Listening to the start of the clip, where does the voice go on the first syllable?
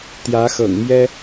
rising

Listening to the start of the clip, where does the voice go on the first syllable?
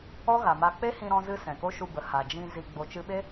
high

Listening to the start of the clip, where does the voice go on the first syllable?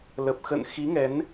low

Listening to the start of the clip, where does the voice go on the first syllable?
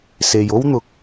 low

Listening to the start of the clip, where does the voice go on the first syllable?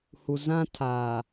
low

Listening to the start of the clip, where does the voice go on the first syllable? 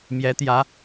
rising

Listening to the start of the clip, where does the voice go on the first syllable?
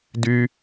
high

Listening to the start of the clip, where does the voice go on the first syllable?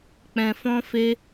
low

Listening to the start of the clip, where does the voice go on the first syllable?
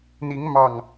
rising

